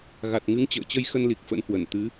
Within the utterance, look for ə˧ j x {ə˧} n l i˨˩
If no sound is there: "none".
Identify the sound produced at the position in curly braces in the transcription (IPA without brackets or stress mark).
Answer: ə˧